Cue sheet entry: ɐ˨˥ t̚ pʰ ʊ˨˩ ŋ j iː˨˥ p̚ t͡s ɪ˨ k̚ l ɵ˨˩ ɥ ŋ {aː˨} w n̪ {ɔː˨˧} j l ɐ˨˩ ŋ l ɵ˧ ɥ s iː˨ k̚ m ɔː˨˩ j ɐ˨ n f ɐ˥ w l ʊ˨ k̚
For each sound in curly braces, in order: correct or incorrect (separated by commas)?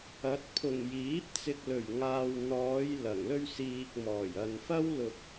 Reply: correct, correct